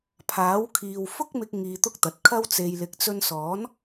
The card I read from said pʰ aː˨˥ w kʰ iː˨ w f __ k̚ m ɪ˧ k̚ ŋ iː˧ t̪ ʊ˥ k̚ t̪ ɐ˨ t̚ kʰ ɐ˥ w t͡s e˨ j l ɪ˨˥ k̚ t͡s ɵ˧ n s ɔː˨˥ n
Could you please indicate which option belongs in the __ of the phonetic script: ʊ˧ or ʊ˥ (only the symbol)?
ʊ˥